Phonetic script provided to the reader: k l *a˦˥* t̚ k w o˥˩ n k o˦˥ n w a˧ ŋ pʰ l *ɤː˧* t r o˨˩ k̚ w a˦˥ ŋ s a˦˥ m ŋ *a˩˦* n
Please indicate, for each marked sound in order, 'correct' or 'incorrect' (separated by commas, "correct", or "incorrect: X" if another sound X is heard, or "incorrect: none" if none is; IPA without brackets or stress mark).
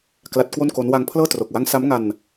correct, incorrect: ɤː˥˩, incorrect: a˧